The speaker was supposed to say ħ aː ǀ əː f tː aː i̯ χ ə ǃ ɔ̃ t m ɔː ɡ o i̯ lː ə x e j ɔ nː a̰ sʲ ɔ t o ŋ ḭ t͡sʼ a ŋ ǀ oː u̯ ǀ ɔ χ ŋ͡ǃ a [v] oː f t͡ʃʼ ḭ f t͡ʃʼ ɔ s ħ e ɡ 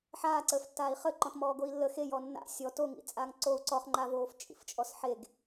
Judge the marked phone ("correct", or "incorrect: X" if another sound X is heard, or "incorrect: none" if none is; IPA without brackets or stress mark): correct